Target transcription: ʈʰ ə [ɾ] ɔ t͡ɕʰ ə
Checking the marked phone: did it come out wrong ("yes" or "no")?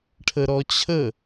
no